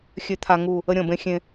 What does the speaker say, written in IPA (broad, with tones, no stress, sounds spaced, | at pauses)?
xʲ ø˨ t̪ʰ a˨ ŋ u˦˨ | ə˦ ɾʲ ɔ̃˨ b ẽ˦ xʲ ẽ˦